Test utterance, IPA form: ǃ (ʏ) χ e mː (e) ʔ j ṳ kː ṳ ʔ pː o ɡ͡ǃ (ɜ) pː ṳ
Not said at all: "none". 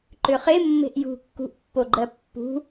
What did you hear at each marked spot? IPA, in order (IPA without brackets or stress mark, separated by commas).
ʏ, e̤, ɜ